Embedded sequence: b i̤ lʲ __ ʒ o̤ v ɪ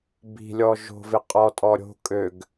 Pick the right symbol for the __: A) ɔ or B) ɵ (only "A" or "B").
A